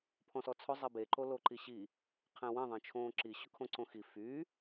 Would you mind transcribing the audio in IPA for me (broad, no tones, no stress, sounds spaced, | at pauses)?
pʰ ɔ̃ s ɔ t͡sʰ ʊ zˤ e b e ǃ o l o ǃ i ɕ i | qʰ ɛ̃ w ẽ ðˤ ẽ t͡ʃʰ õː ǁ i ɕ ʊ kʰ õ ǀ õ x i f y